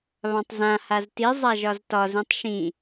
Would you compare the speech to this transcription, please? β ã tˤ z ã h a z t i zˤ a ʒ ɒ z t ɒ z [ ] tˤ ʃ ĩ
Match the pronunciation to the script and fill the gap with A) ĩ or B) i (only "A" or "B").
A